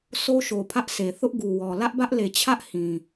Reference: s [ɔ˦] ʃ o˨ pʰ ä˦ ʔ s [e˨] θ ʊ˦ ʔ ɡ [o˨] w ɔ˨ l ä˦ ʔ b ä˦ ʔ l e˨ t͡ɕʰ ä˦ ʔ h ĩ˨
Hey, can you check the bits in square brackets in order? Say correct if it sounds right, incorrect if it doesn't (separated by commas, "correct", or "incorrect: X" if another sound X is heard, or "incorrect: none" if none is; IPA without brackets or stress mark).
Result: incorrect: o˦, correct, incorrect: u˨